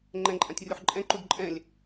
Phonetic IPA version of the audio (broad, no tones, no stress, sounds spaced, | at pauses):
ŋ͡ǃ ɛ̃ ǃʼ ã tʲ rʲ u ħ ǃʼ ɛ̃ ǃ u d ǃʼ ɛ̃ lʲ